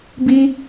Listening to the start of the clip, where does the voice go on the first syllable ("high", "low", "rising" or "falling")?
high